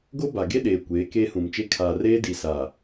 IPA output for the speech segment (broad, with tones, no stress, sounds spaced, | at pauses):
ɡ o˦ b a˨ ɡ e˦ ɗ eː˨ kʷ eː˨˦ k eː˦ h ũ˨ m t͡ʃ e˦ kʰ a˨ r eː˦ d i˨ s a˨